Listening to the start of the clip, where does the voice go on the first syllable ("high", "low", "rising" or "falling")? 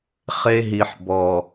high